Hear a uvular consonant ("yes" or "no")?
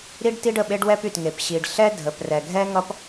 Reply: no